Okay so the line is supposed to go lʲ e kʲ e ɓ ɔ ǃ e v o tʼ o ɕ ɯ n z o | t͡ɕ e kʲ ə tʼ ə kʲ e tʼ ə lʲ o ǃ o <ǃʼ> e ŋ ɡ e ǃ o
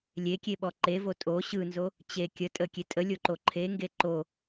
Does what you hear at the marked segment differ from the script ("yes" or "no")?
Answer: yes